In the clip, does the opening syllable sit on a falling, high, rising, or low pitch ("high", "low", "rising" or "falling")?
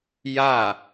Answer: falling